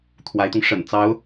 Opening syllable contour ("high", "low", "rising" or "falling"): rising